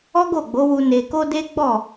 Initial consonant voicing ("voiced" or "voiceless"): voiced